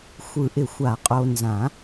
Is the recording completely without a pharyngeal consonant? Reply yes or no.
yes